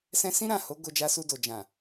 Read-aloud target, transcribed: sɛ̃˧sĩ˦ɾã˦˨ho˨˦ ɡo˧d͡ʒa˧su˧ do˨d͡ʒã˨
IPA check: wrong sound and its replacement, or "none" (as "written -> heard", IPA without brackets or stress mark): none